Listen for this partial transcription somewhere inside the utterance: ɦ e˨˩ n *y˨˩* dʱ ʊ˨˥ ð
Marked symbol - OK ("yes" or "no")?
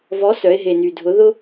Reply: yes